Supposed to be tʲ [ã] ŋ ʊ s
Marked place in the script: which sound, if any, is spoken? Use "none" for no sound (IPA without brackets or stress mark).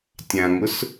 ã